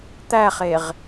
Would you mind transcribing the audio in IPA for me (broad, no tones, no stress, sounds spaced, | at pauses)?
t̪ æ χ e ʁ